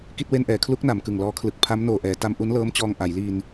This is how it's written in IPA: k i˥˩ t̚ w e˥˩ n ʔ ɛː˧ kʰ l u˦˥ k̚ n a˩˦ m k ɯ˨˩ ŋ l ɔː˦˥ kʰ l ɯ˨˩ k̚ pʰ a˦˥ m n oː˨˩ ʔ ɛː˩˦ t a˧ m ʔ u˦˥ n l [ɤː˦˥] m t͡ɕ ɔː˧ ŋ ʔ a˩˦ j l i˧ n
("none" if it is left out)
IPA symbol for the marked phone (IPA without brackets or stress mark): ɤː˦˥